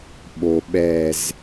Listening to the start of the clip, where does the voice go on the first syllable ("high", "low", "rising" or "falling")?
low